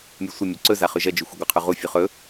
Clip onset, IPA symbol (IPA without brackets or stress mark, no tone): mʲ